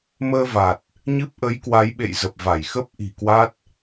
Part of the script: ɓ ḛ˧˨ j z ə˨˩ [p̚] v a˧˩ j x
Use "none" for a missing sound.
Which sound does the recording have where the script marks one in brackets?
p̚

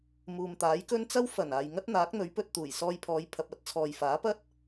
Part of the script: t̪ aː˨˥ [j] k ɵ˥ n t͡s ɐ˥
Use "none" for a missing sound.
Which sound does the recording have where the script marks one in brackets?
j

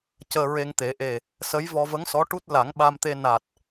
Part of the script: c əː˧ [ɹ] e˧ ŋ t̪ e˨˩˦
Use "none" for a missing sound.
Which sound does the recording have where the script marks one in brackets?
ɹ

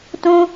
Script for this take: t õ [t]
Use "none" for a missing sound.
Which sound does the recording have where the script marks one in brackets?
none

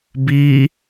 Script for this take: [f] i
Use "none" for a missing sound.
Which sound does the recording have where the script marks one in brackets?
b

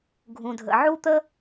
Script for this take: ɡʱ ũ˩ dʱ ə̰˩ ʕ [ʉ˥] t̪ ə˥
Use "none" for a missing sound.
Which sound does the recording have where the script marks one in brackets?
u˥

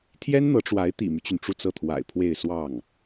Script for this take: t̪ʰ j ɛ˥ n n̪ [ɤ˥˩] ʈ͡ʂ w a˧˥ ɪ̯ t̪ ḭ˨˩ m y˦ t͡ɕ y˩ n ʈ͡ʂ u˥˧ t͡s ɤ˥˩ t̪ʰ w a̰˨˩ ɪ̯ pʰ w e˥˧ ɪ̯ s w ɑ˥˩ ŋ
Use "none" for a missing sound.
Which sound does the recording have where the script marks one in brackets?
ɤ˧˥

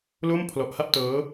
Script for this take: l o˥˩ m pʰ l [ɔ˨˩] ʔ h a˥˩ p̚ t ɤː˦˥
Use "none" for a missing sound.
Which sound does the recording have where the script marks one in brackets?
ɔ˨˩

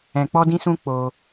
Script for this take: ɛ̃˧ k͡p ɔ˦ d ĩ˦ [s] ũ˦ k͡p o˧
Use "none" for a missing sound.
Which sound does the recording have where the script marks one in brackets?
s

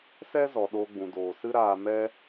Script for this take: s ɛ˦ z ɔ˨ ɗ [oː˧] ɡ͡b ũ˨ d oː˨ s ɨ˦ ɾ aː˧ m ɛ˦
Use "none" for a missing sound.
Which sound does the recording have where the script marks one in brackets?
oː˧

